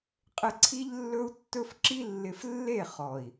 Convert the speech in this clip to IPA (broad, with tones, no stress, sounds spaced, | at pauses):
qʼ ɪ˧ ǀʰ i˦ ʎ lː ɵ˦ u̯ tː ɵ˦ f ǁ i˦ lː ɪ˧ f lː e˦˨ χ ɔ˨ i̯